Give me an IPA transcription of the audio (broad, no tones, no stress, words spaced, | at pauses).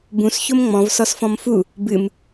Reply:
bũs çomŋ͡mɔ̃v sɔsfɔ̃mfu | bɨm